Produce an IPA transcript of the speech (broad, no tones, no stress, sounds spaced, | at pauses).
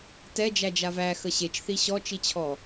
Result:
t ɛ d͡ʒ æ d͡ʒ a v æ x ə ɕ e t͡ʃ θ i ɕ ɔ t͡ʃ i t͡ɕʰ ɔ